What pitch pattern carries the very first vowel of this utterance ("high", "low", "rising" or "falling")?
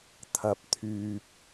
low